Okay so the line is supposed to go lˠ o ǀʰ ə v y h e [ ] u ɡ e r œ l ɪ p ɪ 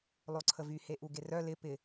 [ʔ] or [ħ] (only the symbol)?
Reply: ʔ